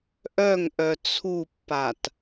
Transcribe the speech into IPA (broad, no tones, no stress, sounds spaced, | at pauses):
ʔ œ ŋ ʔ œ t͡sʰ u pː a t